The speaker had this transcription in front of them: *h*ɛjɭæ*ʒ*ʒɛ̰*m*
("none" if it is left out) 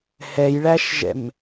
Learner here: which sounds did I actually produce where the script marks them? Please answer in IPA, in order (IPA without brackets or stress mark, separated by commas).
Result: h, ʃ, m